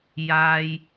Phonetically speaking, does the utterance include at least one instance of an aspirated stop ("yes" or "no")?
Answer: no